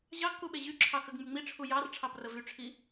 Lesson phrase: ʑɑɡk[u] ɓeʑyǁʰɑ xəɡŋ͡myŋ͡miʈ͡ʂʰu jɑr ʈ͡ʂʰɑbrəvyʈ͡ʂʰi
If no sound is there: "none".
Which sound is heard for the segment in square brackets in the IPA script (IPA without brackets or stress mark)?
u